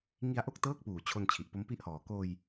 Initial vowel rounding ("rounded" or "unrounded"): unrounded